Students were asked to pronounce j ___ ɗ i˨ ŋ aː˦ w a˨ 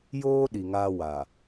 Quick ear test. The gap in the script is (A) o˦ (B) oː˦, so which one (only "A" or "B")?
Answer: B